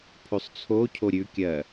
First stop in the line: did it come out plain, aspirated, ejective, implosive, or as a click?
aspirated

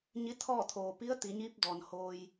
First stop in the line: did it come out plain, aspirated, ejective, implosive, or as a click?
aspirated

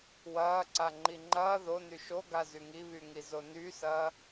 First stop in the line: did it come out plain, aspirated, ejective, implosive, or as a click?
click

